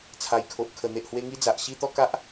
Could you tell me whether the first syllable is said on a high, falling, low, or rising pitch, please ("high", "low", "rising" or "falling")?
low